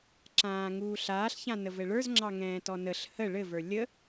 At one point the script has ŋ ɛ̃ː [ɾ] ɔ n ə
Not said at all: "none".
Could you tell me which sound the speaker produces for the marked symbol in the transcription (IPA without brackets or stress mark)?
t